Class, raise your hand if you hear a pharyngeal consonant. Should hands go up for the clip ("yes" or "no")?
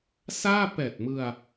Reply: no